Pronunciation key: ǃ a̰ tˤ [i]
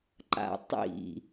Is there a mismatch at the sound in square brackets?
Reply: yes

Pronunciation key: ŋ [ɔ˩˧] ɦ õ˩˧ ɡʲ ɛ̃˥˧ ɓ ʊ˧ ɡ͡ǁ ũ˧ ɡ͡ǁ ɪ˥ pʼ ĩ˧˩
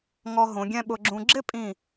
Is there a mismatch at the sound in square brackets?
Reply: yes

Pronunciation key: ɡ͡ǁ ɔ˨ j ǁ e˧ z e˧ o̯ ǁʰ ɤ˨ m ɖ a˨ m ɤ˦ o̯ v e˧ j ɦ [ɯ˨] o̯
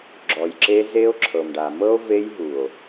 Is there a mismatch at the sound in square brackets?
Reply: yes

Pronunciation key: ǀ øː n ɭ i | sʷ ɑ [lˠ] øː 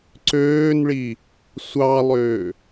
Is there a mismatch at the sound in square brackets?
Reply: no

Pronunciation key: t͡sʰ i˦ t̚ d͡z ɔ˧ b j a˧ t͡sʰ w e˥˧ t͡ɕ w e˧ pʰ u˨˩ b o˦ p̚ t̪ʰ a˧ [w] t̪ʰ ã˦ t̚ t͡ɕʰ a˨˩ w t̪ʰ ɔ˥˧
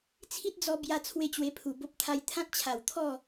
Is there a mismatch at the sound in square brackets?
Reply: yes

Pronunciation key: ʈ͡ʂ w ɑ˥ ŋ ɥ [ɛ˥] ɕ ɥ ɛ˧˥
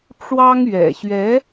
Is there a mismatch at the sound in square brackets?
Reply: yes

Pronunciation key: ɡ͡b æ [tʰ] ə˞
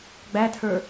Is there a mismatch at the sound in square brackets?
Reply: no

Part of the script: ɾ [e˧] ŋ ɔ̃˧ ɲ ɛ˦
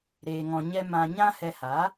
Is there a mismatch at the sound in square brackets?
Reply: yes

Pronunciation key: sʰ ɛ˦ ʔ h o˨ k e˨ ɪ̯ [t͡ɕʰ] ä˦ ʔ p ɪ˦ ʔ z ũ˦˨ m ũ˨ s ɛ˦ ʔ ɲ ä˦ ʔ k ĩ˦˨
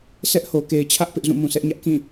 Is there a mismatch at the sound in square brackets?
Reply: no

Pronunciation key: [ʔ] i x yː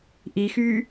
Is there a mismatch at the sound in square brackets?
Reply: no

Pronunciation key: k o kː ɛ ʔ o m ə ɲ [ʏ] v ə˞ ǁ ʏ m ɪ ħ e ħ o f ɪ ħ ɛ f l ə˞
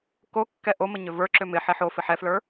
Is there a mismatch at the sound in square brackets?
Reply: no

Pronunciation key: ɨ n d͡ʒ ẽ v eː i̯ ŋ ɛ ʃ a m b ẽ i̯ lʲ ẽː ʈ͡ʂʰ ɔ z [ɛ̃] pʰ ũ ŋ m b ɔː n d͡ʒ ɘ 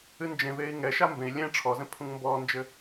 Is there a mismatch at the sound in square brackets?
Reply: no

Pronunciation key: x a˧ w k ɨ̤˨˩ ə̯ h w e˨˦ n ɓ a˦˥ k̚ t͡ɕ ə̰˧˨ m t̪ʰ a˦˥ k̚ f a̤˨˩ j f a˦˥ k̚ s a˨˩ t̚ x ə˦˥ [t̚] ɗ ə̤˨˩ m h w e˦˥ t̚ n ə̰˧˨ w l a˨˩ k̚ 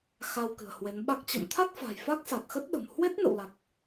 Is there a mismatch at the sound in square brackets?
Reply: no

